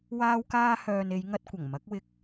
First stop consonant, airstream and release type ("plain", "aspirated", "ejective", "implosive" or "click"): plain